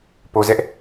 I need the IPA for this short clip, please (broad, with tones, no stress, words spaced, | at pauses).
po˨zɛ˦ʔ